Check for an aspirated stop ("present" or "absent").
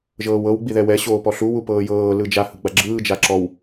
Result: absent